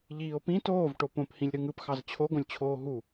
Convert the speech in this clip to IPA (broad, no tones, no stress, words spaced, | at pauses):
ʎiːo̯pĩ toːv ʈopõphĩlʲ ɾɯŋɯpxɑz t͡ɕʰoɡõlʲt͡ɕʰoː ɦu